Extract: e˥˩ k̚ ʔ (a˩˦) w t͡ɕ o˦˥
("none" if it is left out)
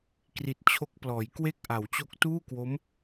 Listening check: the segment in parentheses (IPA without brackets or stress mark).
a˩˦